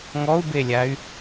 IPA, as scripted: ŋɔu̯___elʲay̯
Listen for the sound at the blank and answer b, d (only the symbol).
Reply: b